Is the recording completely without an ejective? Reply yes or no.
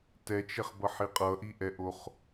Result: no